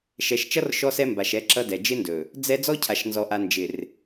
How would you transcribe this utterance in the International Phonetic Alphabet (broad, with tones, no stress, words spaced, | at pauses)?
ʃɛ˨ʃt͡ʃʌ˦r ʃɔ˦sɛ˦mba˨ʃ ɛ˦ǁʌ˦dɛ˨ d͡ʒɪ˦ ndɵ˨ | d͡zɛ˦ d͡zɔ˦cʰa˨ʃnzɔ˨ʔa˨ nd͡ʒɪ˨r